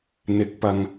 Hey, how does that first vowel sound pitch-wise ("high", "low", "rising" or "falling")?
rising